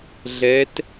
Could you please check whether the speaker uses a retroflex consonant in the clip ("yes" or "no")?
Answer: no